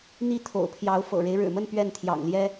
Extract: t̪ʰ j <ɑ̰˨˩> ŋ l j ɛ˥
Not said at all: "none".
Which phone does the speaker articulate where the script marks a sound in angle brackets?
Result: ɑ̰˨˩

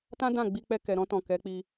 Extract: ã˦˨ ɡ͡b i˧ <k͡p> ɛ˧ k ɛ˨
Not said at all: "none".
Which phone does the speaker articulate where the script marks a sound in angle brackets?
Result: k͡p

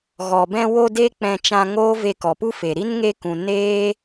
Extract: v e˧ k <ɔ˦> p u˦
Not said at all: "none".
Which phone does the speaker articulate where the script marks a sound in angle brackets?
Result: ɔ˨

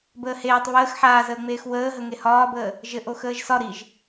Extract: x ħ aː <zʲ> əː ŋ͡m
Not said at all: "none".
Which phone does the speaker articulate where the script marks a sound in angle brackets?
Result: z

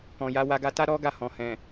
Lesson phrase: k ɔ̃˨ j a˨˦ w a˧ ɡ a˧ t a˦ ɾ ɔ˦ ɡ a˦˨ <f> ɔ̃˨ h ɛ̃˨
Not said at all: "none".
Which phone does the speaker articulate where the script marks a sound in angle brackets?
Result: h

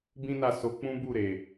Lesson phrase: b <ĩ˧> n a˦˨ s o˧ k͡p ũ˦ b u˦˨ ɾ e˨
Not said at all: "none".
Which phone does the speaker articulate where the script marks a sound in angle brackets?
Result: ĩ˦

